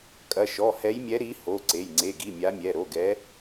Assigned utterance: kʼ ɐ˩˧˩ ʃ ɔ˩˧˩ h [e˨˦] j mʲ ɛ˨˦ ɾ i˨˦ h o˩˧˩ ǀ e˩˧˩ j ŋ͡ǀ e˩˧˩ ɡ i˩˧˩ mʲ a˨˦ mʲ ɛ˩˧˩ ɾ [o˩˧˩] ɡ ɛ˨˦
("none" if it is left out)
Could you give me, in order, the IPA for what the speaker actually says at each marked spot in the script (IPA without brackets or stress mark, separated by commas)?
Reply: ɛ˨˦, o˩˧˩